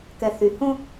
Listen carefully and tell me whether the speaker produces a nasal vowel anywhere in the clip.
yes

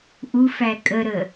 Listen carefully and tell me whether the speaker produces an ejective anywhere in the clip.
yes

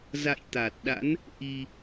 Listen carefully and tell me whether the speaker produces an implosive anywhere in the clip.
yes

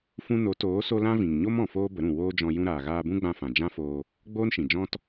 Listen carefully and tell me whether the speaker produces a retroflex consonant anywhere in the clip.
no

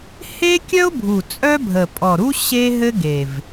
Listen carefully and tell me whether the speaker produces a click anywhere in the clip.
no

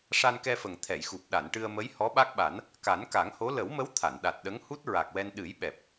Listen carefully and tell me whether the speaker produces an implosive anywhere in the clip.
yes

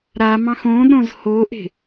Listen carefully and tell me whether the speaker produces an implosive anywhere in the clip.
yes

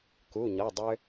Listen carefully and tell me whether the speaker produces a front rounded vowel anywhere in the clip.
yes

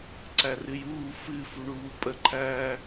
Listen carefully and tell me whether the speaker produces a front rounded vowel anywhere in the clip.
no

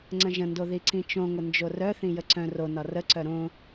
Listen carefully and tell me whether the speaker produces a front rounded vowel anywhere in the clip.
yes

